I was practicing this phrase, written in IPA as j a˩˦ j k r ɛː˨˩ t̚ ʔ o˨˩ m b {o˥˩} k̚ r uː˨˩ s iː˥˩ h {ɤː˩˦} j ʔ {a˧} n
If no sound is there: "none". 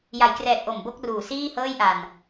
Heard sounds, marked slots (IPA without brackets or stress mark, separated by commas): o˥˩, ɤː˥˩, a˧